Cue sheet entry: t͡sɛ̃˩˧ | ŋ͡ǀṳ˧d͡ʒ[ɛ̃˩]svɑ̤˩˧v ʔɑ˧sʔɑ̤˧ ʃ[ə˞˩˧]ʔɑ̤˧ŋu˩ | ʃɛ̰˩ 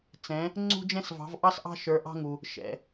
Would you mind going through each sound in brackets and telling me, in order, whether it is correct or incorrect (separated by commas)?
incorrect, correct